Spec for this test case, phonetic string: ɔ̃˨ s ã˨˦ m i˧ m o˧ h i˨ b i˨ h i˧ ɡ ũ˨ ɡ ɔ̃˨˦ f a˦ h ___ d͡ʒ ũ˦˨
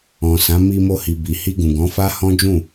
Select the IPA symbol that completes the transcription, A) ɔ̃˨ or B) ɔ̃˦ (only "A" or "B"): B